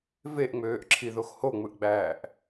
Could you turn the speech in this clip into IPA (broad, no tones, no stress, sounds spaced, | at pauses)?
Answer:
v e ʔ ŋ͡m øː ʔ ǁʰ i ð o x h o ŋ͡m ɯ ʔ ɡ͡b æː ʔ